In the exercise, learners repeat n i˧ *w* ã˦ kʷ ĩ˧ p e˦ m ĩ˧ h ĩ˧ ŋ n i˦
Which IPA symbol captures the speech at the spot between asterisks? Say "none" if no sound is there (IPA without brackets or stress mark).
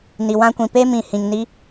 w